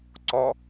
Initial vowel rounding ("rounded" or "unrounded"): rounded